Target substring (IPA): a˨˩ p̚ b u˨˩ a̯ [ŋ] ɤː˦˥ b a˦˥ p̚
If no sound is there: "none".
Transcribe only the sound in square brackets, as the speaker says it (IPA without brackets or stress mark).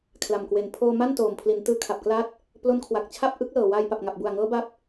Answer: ŋ